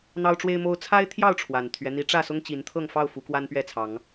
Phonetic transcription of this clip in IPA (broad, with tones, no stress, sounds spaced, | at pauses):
n̪ ɑ˦ ʊ̯ ʈ͡ʂ w e˦ ɪ̯ m o˦ ʊ̯ t͡sʰ a˦ ɪ̯ t̪ʰ j ɑ˥˨ ʊ̯ ʈ͡ʂʰ w a˨˩ n t̪ʰ ɥ ɛ˦ n̪ i˨˦ ʈ͡ʂ ä˥˨ s ʊ˦ ŋ t͡ɕ i˨˦ n t̪ʰ ɤ˥˨ ŋ f ɑ˥˨ ʊ̯ f u˨˦ k w a˦ n p ɥ ɛ˥˨ t͡sʰ ɑ˨˦ ŋ